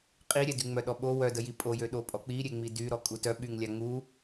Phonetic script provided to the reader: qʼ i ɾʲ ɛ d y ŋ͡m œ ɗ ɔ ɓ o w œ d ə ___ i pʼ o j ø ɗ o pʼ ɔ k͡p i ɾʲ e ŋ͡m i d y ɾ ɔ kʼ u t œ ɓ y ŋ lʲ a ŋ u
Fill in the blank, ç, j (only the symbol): j